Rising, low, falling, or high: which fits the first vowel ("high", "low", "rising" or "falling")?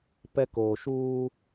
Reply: high